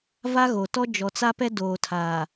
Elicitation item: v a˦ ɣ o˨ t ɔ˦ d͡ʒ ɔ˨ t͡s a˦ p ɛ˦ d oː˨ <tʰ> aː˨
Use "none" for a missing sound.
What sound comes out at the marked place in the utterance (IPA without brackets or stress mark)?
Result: tʰ